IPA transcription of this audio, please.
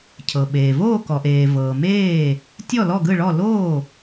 cʰ ɤ˩ ɓ eː˩ v oː˥˩ k ɔ˩ ʔ eː˩ v ɤː˩ m eː˥˩ | tʲ ɔ˥˩ l ɔ˥˩ ɡ ɯ˥˩ ɭ ɔ˥˩ l oː˥˩

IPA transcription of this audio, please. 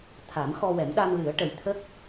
t̪ʰ a˨˩˦ m x ɔ˧ w ɛ˨˩˦ m ɗ a˧ m l ɨ˨˩˦ ə̯ ʈ ə˨˩ j t̪ʰ ə˦˥ k̚

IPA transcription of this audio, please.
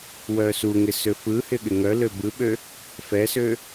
w œ s u ŋ ɪ s ø f ɯ h ɪ ɠ ɪ ŋ œ l ø b ɯ ɓ ø | f ɛ s ø

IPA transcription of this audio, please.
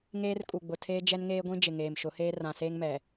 ŋ eː˦ r kʼ u˨ ɡ͡b ʊ˨ tʰ eː˦ d͡ʒ ɛ˦ n ŋ eː˦ ɡʷ ĩ˦ d͡ʒ ɪ˨ ŋ eː˨ m ʃ ʊ˨˦ h eː˦ r ã˨ s eː˦ ŋ m ɛ˨

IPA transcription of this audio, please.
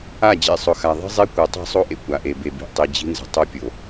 a˦˨ d͡ʑ ḛ˨ sˤ ʊ˨ x a˨ ðˤ i̤˦ zˤ e˦ kʷ ɤ˨ tˤ i̤˦˨ sˤ o˦ ʔ ḛ˨ kʷ a˨ ʔ e˨ b e˨ b i̤˨ ʔ tˤ i˨ d͡ʑ i̤˦ n z ə̤˨ tˤ o˦ pʲ o˨

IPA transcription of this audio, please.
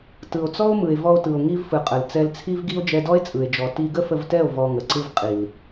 t ɯ˨ o̯ t͡s ɔ˦ o̯ m ɯ˨ e̯ v ɔ˧ o̯ t ɯ˨ o̯ ŋ i˧ v f ɯ˨ qʼ ə˨ l t͡s ɛ˧ l t͡sʰ i˦ v ɡ i˦ o̯ d͡ʒ ɛ˧ d ɔ˦ e̯ t͡sʼ ɯ˨ e̯ d͡ʒ ɔ˨ t i˧ ɡ ə˦ f ə˧ v t ɛ˦˨ o̯ v ɔ˧ ŋ ə˨ ǀ ɯ˦ v qʼ i˨ l

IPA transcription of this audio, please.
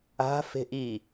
a̤ f e̤ ʔ i

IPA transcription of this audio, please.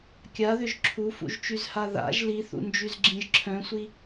kʲ a ð ʏ ʒ ǁʰ u f ṵ ʒ t͡ʃ y z h a ð a̰ ʒ l i θ ṵ n d͡ʒ y z ɡ͡ǁ ĩ ʒ ǁʰ œ̃ sʷ i

